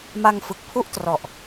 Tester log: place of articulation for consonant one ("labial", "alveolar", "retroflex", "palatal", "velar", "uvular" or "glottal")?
labial